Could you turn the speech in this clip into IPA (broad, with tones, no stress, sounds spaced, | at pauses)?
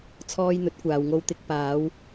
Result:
t͡sʰ ɔː˧ j n̪ ɵ˨˥ t̚ kʷ aː˨ w ŋ o˧ w t̪ ɪ˧ k̚ p aː˨˧ w